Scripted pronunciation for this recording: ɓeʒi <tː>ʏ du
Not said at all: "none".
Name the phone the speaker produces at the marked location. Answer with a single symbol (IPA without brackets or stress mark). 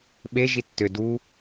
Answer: tː